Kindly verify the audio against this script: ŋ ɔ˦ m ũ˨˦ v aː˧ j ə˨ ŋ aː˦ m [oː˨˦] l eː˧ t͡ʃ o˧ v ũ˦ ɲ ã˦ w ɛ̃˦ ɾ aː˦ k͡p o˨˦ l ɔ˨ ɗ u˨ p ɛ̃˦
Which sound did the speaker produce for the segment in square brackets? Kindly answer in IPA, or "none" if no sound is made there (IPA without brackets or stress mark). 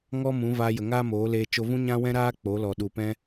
oː˨˦